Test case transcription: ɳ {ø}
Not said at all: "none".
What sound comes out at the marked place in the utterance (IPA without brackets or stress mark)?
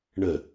ə